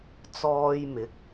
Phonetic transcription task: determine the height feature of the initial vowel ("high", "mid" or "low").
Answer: mid